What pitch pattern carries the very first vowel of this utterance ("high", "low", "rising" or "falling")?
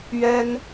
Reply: high